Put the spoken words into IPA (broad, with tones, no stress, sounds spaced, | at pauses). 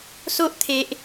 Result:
s o˦ ʔ t̪ʰ e˨ ʔ